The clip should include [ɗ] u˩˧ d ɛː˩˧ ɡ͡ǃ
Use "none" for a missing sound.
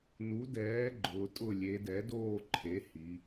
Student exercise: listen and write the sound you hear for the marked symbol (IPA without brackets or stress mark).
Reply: n